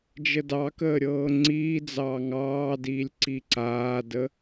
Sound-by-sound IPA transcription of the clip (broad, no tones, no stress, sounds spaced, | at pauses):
d͡ʒ ə d ɑ k əː ɾʲ ɤː ŋ͡ǀ iː d͡z ɑː ŋ ɑː d iː lʲ ǀ i ǀ aː d ə